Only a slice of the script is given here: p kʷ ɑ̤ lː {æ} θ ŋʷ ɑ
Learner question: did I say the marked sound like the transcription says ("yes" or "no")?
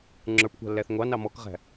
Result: yes